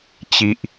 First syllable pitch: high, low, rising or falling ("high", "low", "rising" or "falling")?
high